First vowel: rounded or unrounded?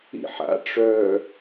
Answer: unrounded